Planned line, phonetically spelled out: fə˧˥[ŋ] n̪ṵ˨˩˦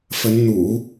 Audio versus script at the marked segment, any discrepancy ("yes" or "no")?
yes